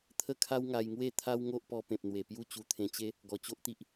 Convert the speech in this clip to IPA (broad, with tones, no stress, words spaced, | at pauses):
t̪ʰə˥˧ kʰa˦wŋa˧jŋwe˥˧ t̪ʰa˦wŋo˦ʔpɔ˧ pẽ˨p̚n̪we˨˩ pju˦t͡ɕu˧t̪ʰẽ˧t͡ɕe˦ | ɡɔ˨˩t͡ɕo˦ʔt̪i˦ʔ